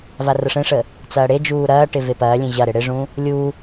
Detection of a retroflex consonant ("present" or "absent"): present